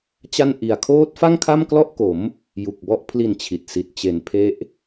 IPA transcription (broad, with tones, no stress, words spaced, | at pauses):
t͡ɕa˥˩n ʔi˨˩a̯kʰoː˦˥t̚fa˥˩ŋ kʰa˥˩mklɔ˥˩ʔko˩˦m | ju˨˩k̚bɔ˦˥ʔ pʰli˨˩n t͡ɕʰi˨˩t̚si˨˩t̚ t͡ɕe˨˩npʰe˦˥ʔ